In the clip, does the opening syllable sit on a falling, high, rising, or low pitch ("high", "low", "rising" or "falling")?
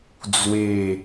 falling